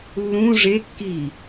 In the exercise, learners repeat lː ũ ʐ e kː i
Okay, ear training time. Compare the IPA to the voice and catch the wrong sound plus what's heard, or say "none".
none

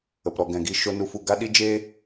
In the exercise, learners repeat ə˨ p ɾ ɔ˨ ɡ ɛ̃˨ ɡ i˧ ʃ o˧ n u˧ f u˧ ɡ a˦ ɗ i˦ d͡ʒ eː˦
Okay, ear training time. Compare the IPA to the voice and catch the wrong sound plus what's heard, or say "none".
none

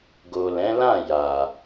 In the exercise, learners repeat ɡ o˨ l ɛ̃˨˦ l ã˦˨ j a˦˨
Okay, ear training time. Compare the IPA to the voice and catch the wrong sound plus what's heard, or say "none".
a˦˨ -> a˨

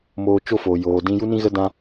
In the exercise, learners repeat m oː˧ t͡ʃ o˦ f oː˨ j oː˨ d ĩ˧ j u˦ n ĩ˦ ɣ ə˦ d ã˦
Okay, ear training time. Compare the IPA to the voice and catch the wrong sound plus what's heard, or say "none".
none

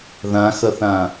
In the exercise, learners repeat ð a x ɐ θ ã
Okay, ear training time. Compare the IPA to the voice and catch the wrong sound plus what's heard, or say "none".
a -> ã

